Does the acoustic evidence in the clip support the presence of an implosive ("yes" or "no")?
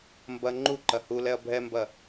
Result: no